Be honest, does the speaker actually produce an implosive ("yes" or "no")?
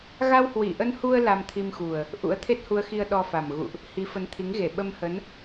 yes